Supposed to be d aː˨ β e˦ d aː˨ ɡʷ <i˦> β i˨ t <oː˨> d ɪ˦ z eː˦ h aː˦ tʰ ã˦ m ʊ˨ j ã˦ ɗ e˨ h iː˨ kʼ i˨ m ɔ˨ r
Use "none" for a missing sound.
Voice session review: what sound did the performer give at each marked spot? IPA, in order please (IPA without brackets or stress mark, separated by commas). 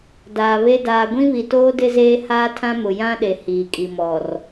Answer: ĩ˦, oː˦